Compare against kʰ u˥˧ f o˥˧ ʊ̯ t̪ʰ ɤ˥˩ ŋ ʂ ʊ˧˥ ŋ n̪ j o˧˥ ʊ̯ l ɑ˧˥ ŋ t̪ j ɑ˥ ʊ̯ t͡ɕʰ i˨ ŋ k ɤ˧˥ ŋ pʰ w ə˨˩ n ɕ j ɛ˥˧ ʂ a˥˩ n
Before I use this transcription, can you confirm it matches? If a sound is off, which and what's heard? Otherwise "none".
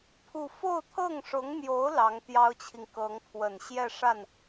kʰ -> pʰ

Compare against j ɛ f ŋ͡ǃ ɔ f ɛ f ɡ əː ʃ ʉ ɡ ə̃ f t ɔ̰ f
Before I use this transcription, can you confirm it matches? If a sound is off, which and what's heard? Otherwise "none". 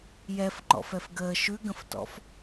ɔ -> ɔ̰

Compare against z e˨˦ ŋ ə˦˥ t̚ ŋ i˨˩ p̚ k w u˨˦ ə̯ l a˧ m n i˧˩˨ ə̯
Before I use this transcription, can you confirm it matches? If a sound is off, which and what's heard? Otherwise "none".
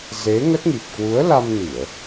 none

